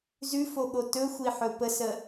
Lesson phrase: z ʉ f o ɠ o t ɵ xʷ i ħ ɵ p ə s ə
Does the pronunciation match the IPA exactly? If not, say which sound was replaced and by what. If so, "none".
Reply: none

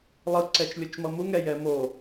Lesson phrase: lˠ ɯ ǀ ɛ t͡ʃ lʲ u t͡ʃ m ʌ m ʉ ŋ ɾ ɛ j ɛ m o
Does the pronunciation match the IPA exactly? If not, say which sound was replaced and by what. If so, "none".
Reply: ʉ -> u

